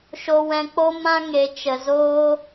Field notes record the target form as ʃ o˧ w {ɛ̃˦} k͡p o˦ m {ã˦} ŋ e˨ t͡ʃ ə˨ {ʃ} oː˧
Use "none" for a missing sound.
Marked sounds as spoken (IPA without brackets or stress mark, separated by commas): ɛ̃˧, ã˦, z